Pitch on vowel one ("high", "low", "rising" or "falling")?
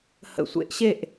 low